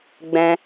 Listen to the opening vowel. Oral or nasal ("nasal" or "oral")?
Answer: nasal